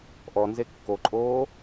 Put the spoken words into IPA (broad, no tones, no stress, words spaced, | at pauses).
ʔɔ nzekːoǃʼoː